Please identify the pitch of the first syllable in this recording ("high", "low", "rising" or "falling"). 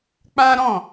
high